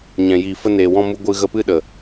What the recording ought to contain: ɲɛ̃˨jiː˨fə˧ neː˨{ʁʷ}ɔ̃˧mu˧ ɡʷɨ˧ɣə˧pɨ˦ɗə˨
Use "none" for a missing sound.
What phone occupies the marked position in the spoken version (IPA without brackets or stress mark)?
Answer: w